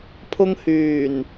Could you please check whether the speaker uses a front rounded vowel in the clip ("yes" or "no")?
yes